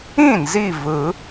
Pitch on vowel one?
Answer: falling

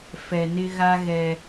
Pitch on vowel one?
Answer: low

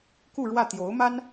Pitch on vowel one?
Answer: falling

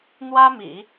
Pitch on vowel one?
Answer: high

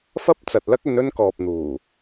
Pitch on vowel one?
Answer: high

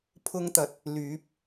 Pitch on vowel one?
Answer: high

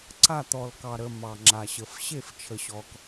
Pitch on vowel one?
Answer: falling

